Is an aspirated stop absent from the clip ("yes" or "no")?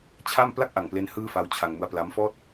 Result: no